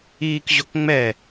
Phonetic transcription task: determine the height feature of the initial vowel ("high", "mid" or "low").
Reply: high